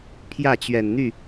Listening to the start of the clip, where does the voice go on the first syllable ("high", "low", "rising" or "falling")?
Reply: falling